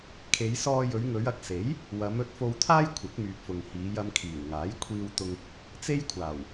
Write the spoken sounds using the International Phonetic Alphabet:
kʰ e˨˧ j s ɔː˧ j ɵ˨˧ ɥ ŋ ɵ˨˧ ɥ ɐ˨˥ k̚ s e˨˥ j | w ɐ˨˧ m ɵ˧ t̚ f o˧ w t̪ʰ aː˥ j kʷʰ ɐ˨˥ k̚ m yː˨ p̚ f ʊ˨ ŋ h iː˨˧ j ɐ˧ m kʰ iː˨˩ w ŋ aː˨˥ j kʷʰ iː˧ w t̪ ʊ˧ ŋ | t͡s e˥ j kʷʰ aː˨˩ w

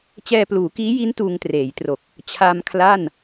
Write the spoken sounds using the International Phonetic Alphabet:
t͡ɕ ɛː˧ p l uː˩˦ k iː˦˥ j i˦˥ n t uː˧ ŋ t r eː˩˦ j t r o˨˩ k̚ | t͡ɕʰ a˧ m kʰ l a˥˩ n

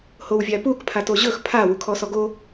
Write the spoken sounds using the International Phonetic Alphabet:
h o w vʲ a p u k pʰ a t o ʑ ɵ x pʰ a w u kʰ ɔ s ɔ ɡ o

